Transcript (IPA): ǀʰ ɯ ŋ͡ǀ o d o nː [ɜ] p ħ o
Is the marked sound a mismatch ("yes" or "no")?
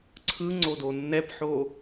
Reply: yes